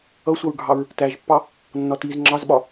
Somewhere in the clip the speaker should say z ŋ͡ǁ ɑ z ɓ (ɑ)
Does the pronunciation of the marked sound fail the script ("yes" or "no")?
yes